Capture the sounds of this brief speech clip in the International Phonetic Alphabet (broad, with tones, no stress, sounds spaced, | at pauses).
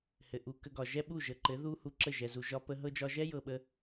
h ɘ˨ ʔ u˨ k ə˧ ɡ ɒ˨ ʒ ɛ˦ ɓ u˦˨ ʒ ə˨ ǃ ɘ˨˦ ð u˦ h u˧ ǁ ə˦˨ ʒ ɛ˨ z u˨ ʒ ɒ˦ p ə˦ ɦ ɤ˧ d͡ʒ ɒ˧ ʒ ɛ˦ j ɤ˧ ɓ ə˦